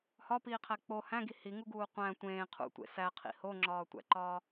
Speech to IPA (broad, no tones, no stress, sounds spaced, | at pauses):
h ɒ p iː qʰ æ k͡p o h æ̃ ɡ i h i ŋ u ɡ uː qʷ æ̃ tʷ ẽː qʰ ṵ tʷ ḛ s æ qʰ ḭ h o ŋ͡ǁ ɒː tʷ æ̰ ǃ ɒː